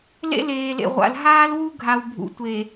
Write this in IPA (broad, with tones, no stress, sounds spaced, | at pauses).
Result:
l ḛ˦ l eː˨ l ḛ˨ ʁʷ a̰˨ l ɦ aː˦ l w u˦ ɡʱ a˨ w bʱ ṵ˨ tʷ e˨